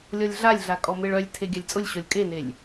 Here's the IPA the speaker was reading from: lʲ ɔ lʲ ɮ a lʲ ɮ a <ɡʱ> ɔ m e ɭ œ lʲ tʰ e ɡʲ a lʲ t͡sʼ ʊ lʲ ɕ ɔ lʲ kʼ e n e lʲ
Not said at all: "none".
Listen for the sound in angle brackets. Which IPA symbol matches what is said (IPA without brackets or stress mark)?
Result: kʼ